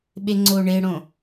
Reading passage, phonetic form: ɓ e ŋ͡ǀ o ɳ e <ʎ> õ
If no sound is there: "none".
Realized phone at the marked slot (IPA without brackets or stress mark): ɽ